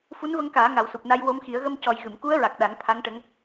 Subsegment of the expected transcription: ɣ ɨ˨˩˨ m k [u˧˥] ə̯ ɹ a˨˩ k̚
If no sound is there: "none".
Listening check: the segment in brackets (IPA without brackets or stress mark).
u˧˥